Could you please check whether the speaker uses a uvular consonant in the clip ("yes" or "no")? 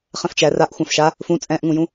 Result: yes